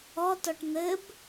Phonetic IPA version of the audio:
ɔ t ɔ ʈ n̪ ɘ b

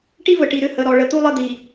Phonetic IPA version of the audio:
ʈ i˦ v ə˨ ʈ i˨ ɾ ʏ˦˨ h ə˨ ɾ ɔ˨ ɭ ə˨ t̪ u˦ lˠ ə˦ d̪ i˨

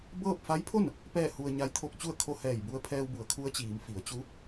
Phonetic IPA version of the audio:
b ɤː˥˨ p̚ f a˧˥ j pʰ o˥˨ n | p ɛː˥˨ h u˧ ə̯ ɲ a˧˥ j t̪ʰ o˥˨ k̚ t͡ɕ u˥˨ ə̯ kʰ o˧˥ h ɛː˧˩ j b u˧ ə̯ pʰ ɛː˧ w b u˩˧ ə̯ kʰ u˧˥ ə̯ t͡ɕ iː˩˧ m f i˩˧ ə̯ t͡ɕ u˧˥

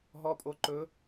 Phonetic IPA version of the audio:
ɦ ɔ˧˥ pʼ o˧˥ ǃ ɵ˧˥

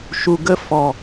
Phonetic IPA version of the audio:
ʃ u˧ ɡ ə˦ f ɔ˨

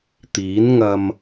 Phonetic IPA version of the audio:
t̪ iː˨˥ n ŋ ɐ˧ m

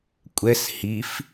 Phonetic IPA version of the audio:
kʷʼ ɛ s h i f

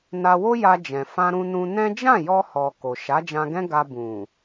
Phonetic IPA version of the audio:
n a˧ w o˦ j a˧ d͡ʒ ɛ̃˨ f ã˧ ɾ ũ˧ n ũ˧ n ɛ̃˦ d͡ʒ ã˦˨ j ɔ˧ h ɔ˨ k o˨ ʃ a˨˦ d͡ʒ ã˧ ɡ ɛ̃˦ ɡ a˧ b ũ˨

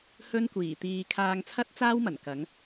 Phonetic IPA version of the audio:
h ɵ˥ n kʷ iː˨˩ t̪ iː˧ kʰ aː˧ ŋ t͡sʰ ɐ˥ t̚ t͡s aː˥ w m ɐ˨˩ n k ɐ˨˥ ŋ

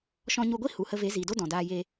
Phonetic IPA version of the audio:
ʃ ɔ̃˧ ɲ u˧ ɡʷ i˦ h u˨ h ə˧ v e˨˦ z iː˨ d o˦ d ɔ̃˨ d aː˧ j e˧

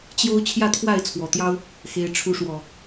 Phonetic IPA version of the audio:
t͡ɕ j o˦ ʊ̯ t͡ɕʰ j ä˥˨ t̪ʰ w a˥˨ ɪ̯ t͡sʰ w ɔ˨˩ t̪ j ɑ˦ ʊ̯ | x e˨˦ ɪ̯ ʈ͡ʂʰ u˨˦ ʂ w ɔ˨˩

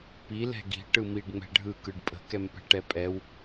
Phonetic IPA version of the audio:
p i l ɛ̤ ɡ i̤ ʈ ɯ m i ɖ ŋ͡m ɛ̤ ɖʱ ɯ k ɯ ɖ pʼ ə̤ k ɛ m p ɛ̤ ʈ ɛ pʼ ɛ w

